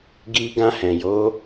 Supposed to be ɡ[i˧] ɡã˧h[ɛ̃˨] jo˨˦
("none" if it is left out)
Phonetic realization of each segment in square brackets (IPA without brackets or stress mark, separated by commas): i˧, ɛ̃˨